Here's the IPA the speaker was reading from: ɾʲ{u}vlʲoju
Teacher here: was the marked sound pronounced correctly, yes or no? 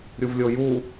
yes